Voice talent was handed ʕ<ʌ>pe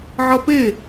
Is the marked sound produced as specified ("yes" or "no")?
yes